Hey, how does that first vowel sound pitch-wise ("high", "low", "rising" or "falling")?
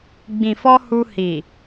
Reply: low